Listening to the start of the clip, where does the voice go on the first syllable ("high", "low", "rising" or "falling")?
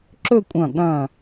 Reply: falling